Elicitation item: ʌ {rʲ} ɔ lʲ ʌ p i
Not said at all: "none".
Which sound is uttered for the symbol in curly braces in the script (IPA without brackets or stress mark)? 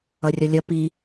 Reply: rʲ